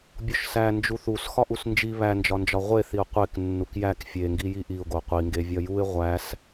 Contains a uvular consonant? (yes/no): yes